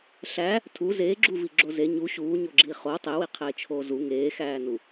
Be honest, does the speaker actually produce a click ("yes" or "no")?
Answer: yes